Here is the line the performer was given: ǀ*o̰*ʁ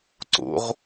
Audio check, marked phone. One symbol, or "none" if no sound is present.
o̰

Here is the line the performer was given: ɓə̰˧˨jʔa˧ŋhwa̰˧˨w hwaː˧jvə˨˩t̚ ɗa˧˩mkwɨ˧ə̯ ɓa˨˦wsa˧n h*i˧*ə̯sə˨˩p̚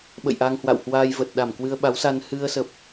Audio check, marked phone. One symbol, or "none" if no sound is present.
ɨ˧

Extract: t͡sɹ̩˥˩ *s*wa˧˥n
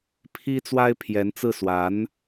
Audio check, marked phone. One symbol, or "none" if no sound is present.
s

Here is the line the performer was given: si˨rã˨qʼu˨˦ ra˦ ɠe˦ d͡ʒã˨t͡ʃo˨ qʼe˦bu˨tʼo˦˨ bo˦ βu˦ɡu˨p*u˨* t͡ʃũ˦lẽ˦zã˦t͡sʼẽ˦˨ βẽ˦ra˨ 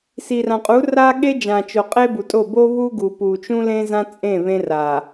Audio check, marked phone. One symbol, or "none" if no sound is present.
u˨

